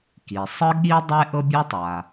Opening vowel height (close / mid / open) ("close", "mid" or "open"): close